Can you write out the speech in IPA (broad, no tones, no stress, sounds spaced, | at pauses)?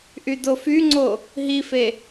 ʔ y d o f y ŋ͡ǀ o | ɦ i f e